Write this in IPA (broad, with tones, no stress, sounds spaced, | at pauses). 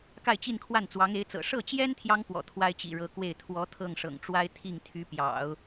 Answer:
k a˥˧ ɪ̯ t͡ɕ i˥˧ n kʰ w a˥˩ n t͡s w ɑ˧˥ ŋ e˧˥ ɪ̯ t͡s ɤ̰˨˩ ʂ ɤ˥˩ t͡ɕ j ɛ˥ n t̪ʰ j ɑ˥ ŋ p w ɔ̰˨˩ t̪ʰ w a˥ ɪ̯ t͡ɕ ḭ˨˩ ɻ ɤ˧˥ k w e˥˩ ɪ̯ t̪ʰ w ɔ˧˥ t̪ʰ ɤ˥˩ ŋ ʂ ɤ̰˨˩ ŋ ʈ͡ʂ w a˥ ɪ̯ t̪ʰ i˥˩ ŋ t̪ʰ y˧˥ p j ɑ̰˨˩˦ ʊ̯